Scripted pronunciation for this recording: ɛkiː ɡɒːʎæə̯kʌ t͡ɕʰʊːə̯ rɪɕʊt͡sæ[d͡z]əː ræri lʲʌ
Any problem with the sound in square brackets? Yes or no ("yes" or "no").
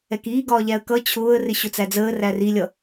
no